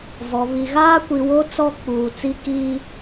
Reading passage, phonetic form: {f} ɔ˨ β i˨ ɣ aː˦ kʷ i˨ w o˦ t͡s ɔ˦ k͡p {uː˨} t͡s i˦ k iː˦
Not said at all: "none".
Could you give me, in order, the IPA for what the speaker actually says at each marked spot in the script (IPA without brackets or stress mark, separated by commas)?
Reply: v, uː˨